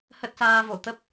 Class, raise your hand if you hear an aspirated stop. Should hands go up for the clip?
no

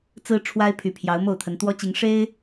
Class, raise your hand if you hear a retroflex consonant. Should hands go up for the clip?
yes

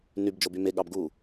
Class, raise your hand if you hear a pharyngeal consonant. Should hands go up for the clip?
no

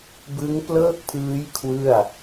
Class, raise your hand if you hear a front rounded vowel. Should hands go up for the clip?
no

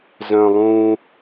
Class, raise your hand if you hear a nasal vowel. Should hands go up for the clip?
yes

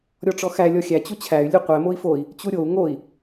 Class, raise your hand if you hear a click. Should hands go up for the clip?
no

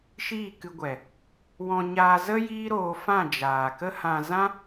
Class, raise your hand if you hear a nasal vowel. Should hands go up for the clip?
yes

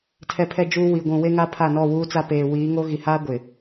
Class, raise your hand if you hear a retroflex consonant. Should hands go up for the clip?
no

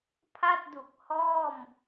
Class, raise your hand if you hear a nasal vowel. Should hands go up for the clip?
no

